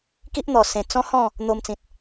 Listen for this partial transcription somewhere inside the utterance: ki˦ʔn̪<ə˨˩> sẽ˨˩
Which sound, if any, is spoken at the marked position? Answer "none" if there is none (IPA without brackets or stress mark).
ɔ˨˩